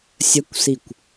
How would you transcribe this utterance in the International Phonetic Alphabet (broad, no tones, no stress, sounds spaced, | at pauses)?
sʲ ə kʷ s i kʷ